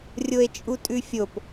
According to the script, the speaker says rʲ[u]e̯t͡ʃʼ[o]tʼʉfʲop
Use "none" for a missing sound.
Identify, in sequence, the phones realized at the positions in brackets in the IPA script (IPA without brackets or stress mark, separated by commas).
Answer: o, u